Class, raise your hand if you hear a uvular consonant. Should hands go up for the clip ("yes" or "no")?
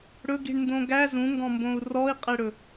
yes